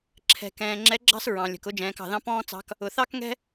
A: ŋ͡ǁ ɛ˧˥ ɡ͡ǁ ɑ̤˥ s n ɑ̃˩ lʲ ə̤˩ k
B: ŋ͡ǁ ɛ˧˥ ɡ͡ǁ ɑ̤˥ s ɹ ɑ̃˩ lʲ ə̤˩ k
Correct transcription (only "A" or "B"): B